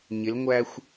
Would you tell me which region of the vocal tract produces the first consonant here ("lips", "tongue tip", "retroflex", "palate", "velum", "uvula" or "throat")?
palate